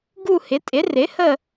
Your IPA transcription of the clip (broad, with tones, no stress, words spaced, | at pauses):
ɡu˦˨hɪ˩˥tʼɪ˩˥ rɪ˩˥hə˦˨